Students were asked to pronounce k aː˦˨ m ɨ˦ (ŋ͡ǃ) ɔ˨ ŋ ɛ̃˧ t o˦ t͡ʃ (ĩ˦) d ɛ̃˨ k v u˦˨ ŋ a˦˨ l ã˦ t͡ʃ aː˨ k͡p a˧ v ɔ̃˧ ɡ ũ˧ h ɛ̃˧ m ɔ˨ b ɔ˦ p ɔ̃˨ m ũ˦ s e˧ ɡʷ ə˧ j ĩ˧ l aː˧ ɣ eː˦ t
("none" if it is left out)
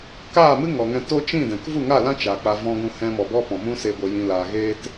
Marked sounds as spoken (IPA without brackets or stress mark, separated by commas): ŋ, ĩ˦˨